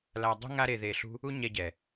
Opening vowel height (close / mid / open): open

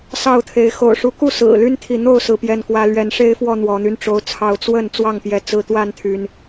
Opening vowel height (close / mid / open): open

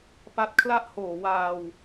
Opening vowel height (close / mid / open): open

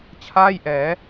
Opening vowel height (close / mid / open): open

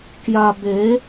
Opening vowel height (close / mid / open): open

